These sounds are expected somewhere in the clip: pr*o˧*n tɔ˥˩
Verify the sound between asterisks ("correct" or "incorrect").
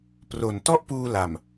incorrect